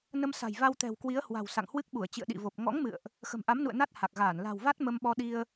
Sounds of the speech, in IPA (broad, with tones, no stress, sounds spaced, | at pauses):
n ə˧ m s a̤˨˩ j v a˧ w t̪ ɛ̤˨˩ w k w i˨˦ ə̯ h w a̤˨˩ w s a̰˧˨ ŋ h w ɨ˦˥ k̚ ɓ u˧˩ ə̯ t͡ɕ ḭ˧˨ ə̯ ɗ ḭ˧˨ v o˨˩ p̚ ŋ ɔ̰˧˥ ŋ m ɨ̰˧˨ ə̯ ʔ | x ə̤˨˩ m ʔ a˨˦ m n ṵ˧˨ ə̯ n a˦˥ t̚ h a˨˩ k̚ ɣ aː˧˩ n l a̤˨˩ w v a˦˥ t̚ m ə˧ m ɓ ɔ˧ ɗ i˧ ə̯